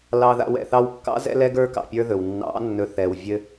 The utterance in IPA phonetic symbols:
lɑ˧ða̰˧w ɛ̰˨θɑ˧wkːɑ̰˦ zɛ̰˦lɛ˦ɡə˞˦ kɑ̰˧pʲə˞˦ðɵ˨w nːɑ̰˨˦nːɵ˨ θɛ˨w vʲɘ˦

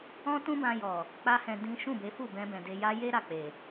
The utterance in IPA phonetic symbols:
ɔ̃˦tũ˦bã˧jɔ˨ | k͡pa˦hɛ̃˧ dĩ˦ ʃũ˦˨be˨˦fu˦˨ bɛ̃˧bɛ̃˨ de˧ja˦ je˦ ɾa˦˨k͡pe˨

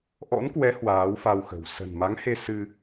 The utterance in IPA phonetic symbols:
ʔɔ̰˧˥nkwɛ˨˦ hwaː˨˦wfa˧wxə̤˨˩w sə̤˨˩nma˨˦ŋhe˧ sɨ˧

